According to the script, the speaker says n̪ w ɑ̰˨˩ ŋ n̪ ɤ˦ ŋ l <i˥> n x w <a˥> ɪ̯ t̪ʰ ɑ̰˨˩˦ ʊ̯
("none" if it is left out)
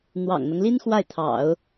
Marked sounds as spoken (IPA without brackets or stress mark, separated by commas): i˥, a˥˩